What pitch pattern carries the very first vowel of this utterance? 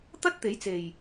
high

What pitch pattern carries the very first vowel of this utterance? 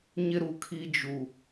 high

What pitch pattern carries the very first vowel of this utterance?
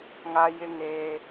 high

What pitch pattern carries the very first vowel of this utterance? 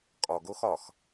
low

